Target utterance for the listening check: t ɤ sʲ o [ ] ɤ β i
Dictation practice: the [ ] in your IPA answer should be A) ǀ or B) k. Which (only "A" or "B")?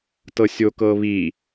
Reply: B